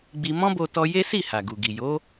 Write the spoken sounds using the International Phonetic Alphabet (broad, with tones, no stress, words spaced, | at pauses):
ɡ͡bi˧ mɔ̃˦bo˧ tɔ˧ je˦ si˦˨ ha˨ɡu˨ɡi˨ jo˨˦